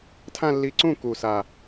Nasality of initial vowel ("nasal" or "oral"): nasal